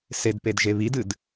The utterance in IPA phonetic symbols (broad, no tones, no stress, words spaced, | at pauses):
sedpedʒe βidɨd